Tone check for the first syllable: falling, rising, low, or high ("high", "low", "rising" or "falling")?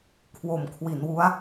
low